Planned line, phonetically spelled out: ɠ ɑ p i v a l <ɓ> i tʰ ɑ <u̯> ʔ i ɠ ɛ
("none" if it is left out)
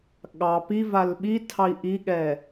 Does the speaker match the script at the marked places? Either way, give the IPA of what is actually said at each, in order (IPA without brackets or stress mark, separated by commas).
ɓ, i̯